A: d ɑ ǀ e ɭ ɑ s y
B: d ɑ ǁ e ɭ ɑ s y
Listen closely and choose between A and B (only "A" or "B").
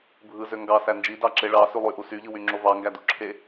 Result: B